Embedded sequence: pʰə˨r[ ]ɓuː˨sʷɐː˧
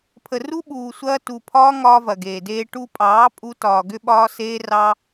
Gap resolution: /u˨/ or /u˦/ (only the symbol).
u˦